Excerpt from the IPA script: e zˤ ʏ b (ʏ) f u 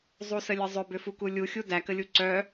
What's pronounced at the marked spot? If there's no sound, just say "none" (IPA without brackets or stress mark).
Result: ʏ